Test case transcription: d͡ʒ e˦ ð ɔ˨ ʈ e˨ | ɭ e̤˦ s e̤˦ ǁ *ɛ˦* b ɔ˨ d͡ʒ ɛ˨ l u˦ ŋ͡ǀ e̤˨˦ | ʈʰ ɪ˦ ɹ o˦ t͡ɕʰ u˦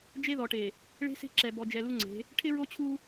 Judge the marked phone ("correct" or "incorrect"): incorrect